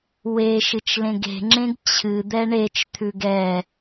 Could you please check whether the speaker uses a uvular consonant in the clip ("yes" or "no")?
no